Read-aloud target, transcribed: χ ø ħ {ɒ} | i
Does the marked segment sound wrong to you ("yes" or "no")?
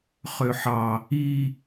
yes